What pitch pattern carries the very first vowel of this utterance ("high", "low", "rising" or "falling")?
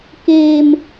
high